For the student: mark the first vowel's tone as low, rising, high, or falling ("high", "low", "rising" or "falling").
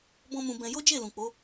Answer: high